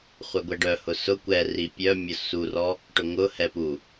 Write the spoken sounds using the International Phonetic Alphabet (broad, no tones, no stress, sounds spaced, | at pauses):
χʷ œ ɡʷ ɛ ɖ œ h ʊ s ʊ kʷ ɛ r i pʲ œ mʲ ʊ s u r ɔ | ʈ ʊ ŋ ʊ h ɛ p u